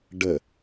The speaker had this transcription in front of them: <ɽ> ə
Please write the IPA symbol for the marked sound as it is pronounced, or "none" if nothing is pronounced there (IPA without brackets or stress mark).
ɖ